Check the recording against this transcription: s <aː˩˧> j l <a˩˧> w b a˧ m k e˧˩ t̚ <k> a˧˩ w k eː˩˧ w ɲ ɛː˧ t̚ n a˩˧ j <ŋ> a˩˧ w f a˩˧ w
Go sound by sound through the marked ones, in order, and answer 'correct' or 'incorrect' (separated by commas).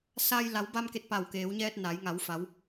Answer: incorrect, correct, incorrect, correct